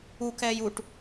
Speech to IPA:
u k ɛː j u ʈ

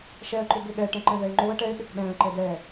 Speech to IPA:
ʃ ɛ ə̯ ǃ ʏ b ʏ ɠ ɛ ʈ ɛ̃ ǃ ɛ̃ v ɛ ɪ̯ ŋ͡ǃ o ə̯ ʈ ɛ ɪ̯ ɗ ʏ k ɗ ɛ̃ ə̯ ǃ ɛ d̪ ɛ

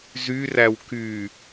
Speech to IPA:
z y r æ w k y

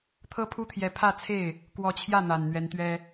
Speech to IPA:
t̪ʰ ɤ˥ pʰ u˥ t̪ʰ j ɛ˧˥ pʰ ä˥˧ t͡sʰ e˥˩ ɪ̯ | k w ɔ˧˥ t͡ɕʰ j ä˥˩ n̪ a˨˩ n n̪ ɥ ɛ˧˥ n t̪ ɥ ɛ˥

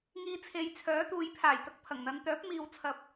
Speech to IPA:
ŋ iː˧ t͡sʰ e˨ j t͡sʰ œː˨˥ t̪ uː˨˧ j pʰ aː˨˩ j t̪ ɐ˧ k̚ pʰ ɐ˨˩ ŋ n̪ ɐ˨˧ n t̪ œː˨˥ p̚ m iː˧ w t͡sʰ ɐ˧ p̚

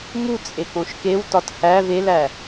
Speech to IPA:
m u t͡sʼ e k õ ʃ k e w t ɒ t h æ v e l æ

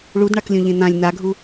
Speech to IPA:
ɭ u d ɳ a k lʲ õ ʎ ẽ n̪ ã lʲ n̪ a ɡʱ u

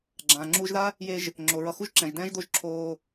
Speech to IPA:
ɡ͡ǁ ãː˨ ŋ͡ǁ uː˧ ʒ ð a˦ | j e˧ ʒ | ŋ͡ǁ o˨ ɹ ʌ˧ x u˦ ʒ ǁ ɛ̃˨ ʒ d ɛ̃ː˦ ʒ d̪ o˦ ʒ ǁʰ oː˧

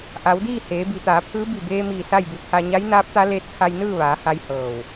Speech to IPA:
ʔ a˩˧ w d iː˥˨ h eː˩˧ b i˩˧ t̪ aː˩˧ pʰ ɯː˧˥ b i˧˩ b eː˧ m iː˧˩ s a˥˨ j b u˧ pʰ a˧ ɲ a˧˥ j n aː˧˥ p̚ t̪ a˧˥ l eː˧˥ t̚ kʰ a˧ j n ɯː˥˨ ʋ aː˩˧ h a˧ j h ɤː˧˩ w

